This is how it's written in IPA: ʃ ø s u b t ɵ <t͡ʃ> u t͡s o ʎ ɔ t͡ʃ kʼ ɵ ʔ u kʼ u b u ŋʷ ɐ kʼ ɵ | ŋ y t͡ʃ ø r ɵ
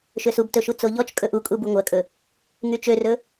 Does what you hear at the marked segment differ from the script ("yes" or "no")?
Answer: yes